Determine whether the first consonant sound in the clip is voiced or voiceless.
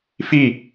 voiceless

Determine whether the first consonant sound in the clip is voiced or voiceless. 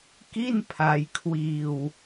voiceless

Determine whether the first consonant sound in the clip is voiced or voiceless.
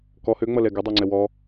voiceless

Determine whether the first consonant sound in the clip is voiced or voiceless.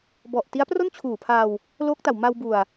voiced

